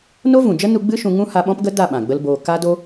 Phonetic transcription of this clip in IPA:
no˦vũ˨d͡ʒə˦ nu˧ɡ͡bɨ˦ ʃũ˧ŋũ˦ha˧ɓɔ̃˦p ɡə˦da˦˨ ɓã˨ɡ͡bə˦lboː˧ ka˦ do˧

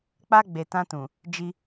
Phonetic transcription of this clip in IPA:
k͡pa˧ ɡ͡be˨tã˧tũ˨ | d͡ʒi˧

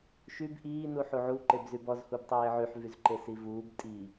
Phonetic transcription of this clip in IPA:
ʃyb ʔiː nuħuʕu ǃebzybɔz hubtˤeːʕyħ vyzǃesivuːb tʼi

